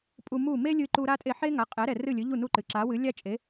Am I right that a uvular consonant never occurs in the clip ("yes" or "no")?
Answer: no